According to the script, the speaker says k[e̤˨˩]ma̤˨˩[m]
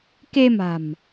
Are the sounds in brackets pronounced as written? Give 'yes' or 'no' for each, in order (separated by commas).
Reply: no, yes